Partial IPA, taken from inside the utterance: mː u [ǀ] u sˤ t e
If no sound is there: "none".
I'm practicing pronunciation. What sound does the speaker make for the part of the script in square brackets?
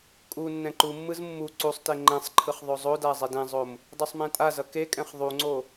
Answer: ǀ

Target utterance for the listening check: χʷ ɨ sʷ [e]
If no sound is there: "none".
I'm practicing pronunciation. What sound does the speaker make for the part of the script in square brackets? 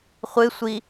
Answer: i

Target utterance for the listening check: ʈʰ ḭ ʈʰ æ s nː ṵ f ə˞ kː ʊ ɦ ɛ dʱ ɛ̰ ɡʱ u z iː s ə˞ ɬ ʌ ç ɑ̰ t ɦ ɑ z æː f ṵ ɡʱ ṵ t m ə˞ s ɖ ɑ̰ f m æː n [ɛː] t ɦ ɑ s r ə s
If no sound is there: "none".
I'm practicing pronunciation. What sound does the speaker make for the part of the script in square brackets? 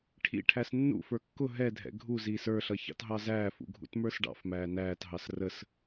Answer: æː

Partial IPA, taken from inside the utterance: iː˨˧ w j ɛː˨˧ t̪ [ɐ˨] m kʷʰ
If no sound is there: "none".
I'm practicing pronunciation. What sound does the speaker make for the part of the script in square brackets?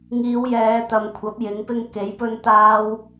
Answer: ɐ˨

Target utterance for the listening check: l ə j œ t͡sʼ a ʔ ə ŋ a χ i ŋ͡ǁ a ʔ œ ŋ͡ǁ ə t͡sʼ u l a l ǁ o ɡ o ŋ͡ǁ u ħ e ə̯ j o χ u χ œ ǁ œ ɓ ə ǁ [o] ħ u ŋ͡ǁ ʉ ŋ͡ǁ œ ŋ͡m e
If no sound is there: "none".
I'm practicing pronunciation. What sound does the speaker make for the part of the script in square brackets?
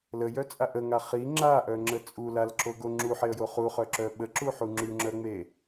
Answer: u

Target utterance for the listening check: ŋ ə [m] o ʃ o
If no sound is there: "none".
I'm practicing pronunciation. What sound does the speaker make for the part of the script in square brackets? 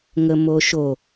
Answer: m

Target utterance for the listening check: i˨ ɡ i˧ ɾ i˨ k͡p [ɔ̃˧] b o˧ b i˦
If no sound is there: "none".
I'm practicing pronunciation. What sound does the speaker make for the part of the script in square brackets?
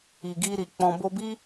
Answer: ɔ̃˧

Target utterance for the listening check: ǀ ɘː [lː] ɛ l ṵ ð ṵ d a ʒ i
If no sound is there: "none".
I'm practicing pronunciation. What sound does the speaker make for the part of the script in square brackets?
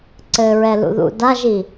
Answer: ɹ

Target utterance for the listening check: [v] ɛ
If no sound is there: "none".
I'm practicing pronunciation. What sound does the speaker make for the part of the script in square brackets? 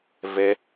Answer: v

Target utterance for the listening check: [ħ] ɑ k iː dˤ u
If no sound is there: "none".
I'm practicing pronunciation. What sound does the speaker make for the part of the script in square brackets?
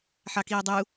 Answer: ħ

